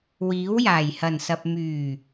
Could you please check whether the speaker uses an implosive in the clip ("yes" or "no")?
no